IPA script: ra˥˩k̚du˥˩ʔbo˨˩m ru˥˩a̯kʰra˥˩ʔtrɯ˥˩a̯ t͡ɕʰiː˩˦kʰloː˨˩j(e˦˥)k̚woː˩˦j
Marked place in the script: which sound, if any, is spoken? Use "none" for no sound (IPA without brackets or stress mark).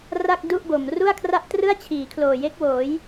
e˦˥